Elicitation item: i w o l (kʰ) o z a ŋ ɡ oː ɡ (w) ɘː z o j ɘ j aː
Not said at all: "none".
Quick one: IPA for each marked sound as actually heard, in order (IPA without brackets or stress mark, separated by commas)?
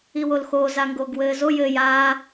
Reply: x, w